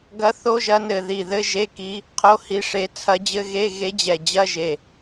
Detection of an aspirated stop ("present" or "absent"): present